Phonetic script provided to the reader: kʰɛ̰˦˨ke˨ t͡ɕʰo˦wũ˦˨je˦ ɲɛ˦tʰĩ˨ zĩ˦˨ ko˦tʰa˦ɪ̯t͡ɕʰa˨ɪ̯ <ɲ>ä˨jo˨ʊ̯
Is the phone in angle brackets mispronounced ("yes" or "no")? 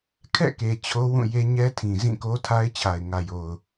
yes